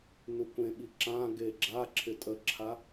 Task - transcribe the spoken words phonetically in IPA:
nukʷẽɓi ǁã ɡeɡ͡ǁaǁʰɪ tʼəǁʰa

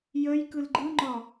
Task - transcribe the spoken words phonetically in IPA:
jəj kɯlɡ͡ǃɯŋ͡ǃɒ

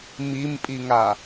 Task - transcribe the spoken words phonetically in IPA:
mimpʼiŋa

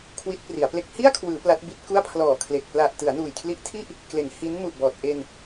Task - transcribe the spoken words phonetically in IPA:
kʰwi˦˥t̚ pri˩˦a̯ple˦˥k̚ hi˥˩a̯kʰwɯː˩˦ pla˦˥t̚bi˦˥t̚ku˥˩a̯ pʰlɔː˨˩kʰle˨˩k̚ pla˨˩ʔ tɯ˩˦a̯nuː˨˩jkʰli˦˥ʔ tʰi˥˩ʔ | kle˩˦n hi˦˥nmu˨˩ʔbɔː˨˩t̚ ʔe˧n

